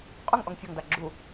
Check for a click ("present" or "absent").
present